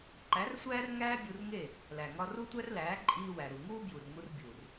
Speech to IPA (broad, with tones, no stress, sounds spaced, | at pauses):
ǃ æ˨˦ r sʷ æː˦ r ŋ æː˦ bʲ u˧ r ŋ e˦˨ | l æ˨ ŋ ɒ˧ r u˦ tʷ æ˦ r l æː˨˦ ǃʼ iː˧ w æ˨ ɾ u˨ ŋ uː˦ b j u˨ r ŋ u˧ r bʲ u˨ r